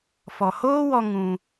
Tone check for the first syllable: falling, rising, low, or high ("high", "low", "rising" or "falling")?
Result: low